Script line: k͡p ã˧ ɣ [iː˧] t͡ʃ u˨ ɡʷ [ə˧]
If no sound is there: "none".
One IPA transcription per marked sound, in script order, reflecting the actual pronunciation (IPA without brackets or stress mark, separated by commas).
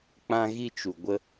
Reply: i˧, ə˧